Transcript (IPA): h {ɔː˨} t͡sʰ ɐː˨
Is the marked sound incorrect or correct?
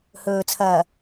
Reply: incorrect